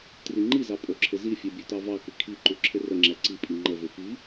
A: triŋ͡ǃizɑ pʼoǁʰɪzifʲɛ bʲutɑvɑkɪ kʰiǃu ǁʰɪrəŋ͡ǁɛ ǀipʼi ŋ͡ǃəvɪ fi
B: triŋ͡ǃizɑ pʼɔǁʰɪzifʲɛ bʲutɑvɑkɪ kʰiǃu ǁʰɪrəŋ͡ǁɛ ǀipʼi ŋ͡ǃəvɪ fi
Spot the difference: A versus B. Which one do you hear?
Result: A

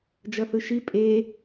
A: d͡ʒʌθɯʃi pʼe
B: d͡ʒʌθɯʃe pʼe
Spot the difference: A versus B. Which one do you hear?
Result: A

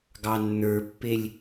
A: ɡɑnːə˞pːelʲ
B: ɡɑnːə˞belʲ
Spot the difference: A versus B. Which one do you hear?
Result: A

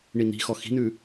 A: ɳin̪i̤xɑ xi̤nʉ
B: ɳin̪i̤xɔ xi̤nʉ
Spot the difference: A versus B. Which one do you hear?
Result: B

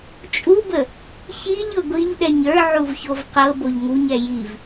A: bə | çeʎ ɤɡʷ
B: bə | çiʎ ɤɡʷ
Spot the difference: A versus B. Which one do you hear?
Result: B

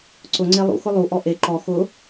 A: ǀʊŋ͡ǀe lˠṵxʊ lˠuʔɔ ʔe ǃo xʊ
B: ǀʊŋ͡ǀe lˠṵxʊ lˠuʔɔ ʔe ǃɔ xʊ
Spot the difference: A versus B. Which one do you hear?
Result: B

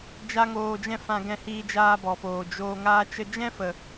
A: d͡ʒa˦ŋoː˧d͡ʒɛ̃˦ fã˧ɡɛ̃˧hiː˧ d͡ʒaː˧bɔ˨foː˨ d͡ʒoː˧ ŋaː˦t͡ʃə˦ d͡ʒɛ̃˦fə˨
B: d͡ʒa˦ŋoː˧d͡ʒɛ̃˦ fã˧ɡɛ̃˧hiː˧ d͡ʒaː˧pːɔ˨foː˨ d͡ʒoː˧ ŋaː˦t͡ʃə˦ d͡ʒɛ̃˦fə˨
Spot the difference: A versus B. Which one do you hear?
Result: A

